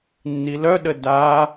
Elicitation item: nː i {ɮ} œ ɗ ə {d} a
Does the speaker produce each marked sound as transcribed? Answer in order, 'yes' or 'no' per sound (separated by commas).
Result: no, yes